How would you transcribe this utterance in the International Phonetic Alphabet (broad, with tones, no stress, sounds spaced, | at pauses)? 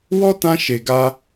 w ɔ˦ t ã˧ ʃ e˨ ɡ a˧